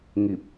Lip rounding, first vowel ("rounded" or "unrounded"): unrounded